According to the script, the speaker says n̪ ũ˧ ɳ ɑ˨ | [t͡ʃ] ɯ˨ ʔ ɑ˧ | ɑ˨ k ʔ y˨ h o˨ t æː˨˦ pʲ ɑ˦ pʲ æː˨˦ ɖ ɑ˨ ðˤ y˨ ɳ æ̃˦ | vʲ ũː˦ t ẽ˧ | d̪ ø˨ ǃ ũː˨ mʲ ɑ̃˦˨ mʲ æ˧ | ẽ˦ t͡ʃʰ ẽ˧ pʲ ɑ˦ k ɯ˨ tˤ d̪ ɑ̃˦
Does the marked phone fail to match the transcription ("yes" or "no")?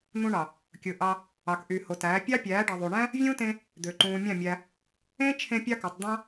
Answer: yes